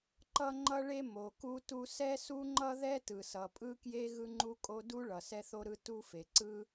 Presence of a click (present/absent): present